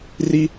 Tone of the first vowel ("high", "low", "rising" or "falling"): high